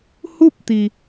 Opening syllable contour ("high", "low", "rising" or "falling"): falling